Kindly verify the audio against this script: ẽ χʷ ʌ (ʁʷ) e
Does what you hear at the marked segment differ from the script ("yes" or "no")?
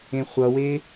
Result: yes